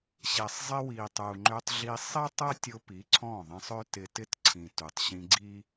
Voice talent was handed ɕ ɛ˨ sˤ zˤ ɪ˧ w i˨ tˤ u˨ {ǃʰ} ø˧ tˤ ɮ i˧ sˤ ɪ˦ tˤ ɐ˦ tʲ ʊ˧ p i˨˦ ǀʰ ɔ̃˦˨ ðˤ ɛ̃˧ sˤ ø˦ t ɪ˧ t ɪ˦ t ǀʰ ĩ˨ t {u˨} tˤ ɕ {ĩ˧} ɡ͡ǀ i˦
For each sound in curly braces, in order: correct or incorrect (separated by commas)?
incorrect, correct, correct